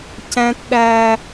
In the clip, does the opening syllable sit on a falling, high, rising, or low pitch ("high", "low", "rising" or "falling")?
high